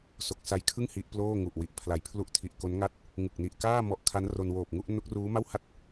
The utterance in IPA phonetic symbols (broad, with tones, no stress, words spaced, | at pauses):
so˨˩k̚sa˦˥jkʰɯ˥˩ŋ hi˦˥ʔploː˥˩ ŋu˨˩ʔwi˨˩ʔpʰla˨˩j pʰlu˦˥ʔtʰi˨˩ʔko˦˥nŋa˥˩t̚ | ŋɯ˨˩k̚ni˨˩ʔkaː˥˩ mɔ˦˥ʔ kʰa˦˥nro˧nwoː˨˩p̚ŋu˦˥ʔ no˦˥k̚ruː˦˥ma˥˩wha˥˩t̚